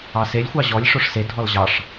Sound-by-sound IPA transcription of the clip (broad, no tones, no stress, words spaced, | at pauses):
ɑselʲ xʷɑʑɔlʲ ʂoʂse dʱɔlʑɑʂ